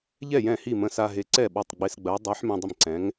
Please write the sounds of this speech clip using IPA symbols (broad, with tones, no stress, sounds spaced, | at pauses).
ʎ ɛ˥˩ j ɛ̃˥˩ h i˥˩ m ə̃˧ s a˧ ɦ e˨˥ ǀ ɛ˥˩ ɓ ɔ˥˩ tˤ ɡ͡b e˧ s ɡ͡b ɜ˨˥ dˤ e˨˥ ħ m ĩ˧ dˤ ə˥˩ m ǀ ɛ̃˨˥ ŋ